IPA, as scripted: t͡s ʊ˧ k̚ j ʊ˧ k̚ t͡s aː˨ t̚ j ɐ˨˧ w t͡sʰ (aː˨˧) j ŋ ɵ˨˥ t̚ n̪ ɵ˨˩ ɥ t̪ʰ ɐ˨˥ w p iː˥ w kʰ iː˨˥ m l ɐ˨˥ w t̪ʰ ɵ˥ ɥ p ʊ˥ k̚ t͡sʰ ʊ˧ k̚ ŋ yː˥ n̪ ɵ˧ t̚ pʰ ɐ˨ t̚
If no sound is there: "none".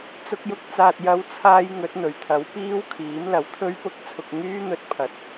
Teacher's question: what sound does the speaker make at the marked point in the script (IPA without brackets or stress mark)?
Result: aː˧